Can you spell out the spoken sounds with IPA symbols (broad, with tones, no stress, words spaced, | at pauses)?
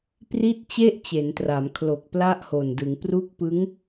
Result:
pri˥˩t̚t͡ɕe˥˩ʔ t͡ɕe˩˦ntra˩˦mkʰlo˨˩k̚ pla˥˩ʔho˨˩ndɯ˩˦ŋ pru˦˥k̚pɯ˦˥ŋ